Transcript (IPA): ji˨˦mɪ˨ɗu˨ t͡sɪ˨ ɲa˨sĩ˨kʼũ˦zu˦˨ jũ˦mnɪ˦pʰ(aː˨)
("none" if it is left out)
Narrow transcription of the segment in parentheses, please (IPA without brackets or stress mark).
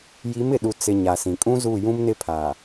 aː˨